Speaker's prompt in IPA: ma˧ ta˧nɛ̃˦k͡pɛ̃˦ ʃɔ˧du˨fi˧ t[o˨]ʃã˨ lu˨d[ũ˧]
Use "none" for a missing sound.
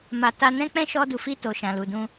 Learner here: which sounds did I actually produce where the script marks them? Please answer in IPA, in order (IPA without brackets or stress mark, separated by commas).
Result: o˨, ũ˧